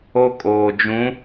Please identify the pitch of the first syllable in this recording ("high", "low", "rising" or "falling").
high